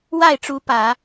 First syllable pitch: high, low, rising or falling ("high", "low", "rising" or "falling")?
falling